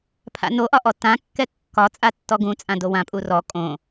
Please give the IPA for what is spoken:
pʰa̰noʔɒʔɔ tãkːɛ kːɒt͡sʼa tːɔɡũt͡sʼã dowã pʼurɔ kʼõ

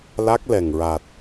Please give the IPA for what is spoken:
la˦˥k̚lɛ˨˩ŋɹa˨˩t̚

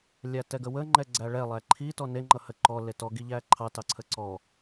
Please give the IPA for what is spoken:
lʲætɛɡəwə ŋ͡ǃɛɡ͡ǀæɭɛ lˠæǃʰi tɔne ŋ͡ǃʌhə ǃɔ letɔ ɡiʎæǃʰɑ tɑǀʰəǀɔ

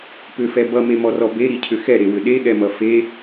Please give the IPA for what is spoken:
pʏfɛ bʌmemɔrɔ beɾicʰʏ xɛɾewʏ ɗeɠɛmʌ fe

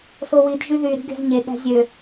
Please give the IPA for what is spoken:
sowid ʒyðy ɾi̤ɡe̤zɲe ɠæ̤zʲø

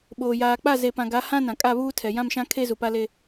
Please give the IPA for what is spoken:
ɓoː˨jaː˨k͡pa˦˨ ze˨pã˨ɡa˨˦ hã˦ nã˨ kʼa˦˨βuː˦tʰɛ˨ jã˦mʃã˦kʰe˦ zu˨pa˦le˦

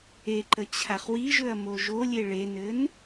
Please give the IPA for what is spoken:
eǃə t͡ɕʰaχwiʒɵɐ̯ moʒolʲe ɭenɘn

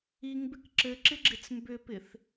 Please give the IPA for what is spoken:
iŋbɪk ǁɘǁɪɡ͡ǁɪt͡s mbʏpɪθ

